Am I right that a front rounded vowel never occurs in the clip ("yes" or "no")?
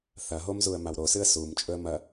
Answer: yes